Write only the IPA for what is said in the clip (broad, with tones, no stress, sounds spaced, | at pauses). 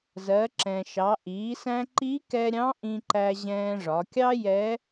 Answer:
z ɜ˩˧ ǁ ɛ̃˩ ʃ ɑ˩˧ ʔ iː˩˧ s æ̃˧ ǃ i˧˥ k ɛ˧ ɾʲ ɑ̃˧˥ ʔ ĩ˧ ǃ æ˧ ʑ ɛ̃ː˧ ʐ ɒ˩˧ kʲ ɑ˥ j ɛ˧˥